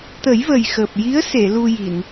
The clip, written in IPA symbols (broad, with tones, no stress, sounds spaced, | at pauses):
t̪ ə˨˩˦ j v ə˨˩ j x əː˨˩ p̚ j i˧˥ ə̯ s e˨˩˨ l u˧ j i˨˩˨ n